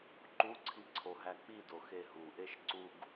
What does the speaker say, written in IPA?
ǃ u ǀʰ i ǀʰ o ɦ æ k͡p i d o x e ɦ u ʔ e ʃ ǀ u ɡ

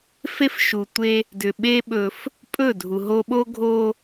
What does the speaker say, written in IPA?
f e˦ f ʃ u˨ tʷ e˦ | d ʏ˨ ɓ e˦ ɓ ɵ˦ f | pʼ ɵ˦˨ dʱ u˨ ɦ o˦ ɓ o˦ ɡʱ o˦

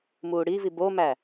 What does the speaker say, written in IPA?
m uː ɽ i v i b o m æ

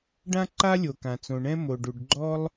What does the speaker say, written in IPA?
ɖ ã˥ ǃ a˥ lʲ o˩ k ã˩ t͡s õ˩ ɳ ɛ̃˥ m o˩ ɖ u˩ ɖ ɡ͡ǃ ɔ˥ lˠ

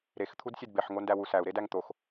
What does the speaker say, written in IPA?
ɾ e x t̪ʰ u d sʲ e d b e ħ ŋ o n d æ w u s æ u̯ ɾ e d æ ŋ t̪ o x

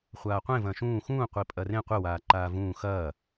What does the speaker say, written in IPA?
χʷ aː qʷ ẽ v ɐ̃ː ʃ ũː x ũː qʷ i pʼ ɐ r ẽ qʷ ɘ w aː ǃ aː v ũː x ɐː

